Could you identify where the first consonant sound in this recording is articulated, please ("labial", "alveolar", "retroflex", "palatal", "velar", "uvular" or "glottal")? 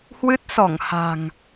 glottal